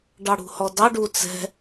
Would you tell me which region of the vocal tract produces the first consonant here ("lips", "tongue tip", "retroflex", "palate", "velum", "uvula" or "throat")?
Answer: retroflex